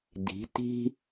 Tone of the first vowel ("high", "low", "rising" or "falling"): rising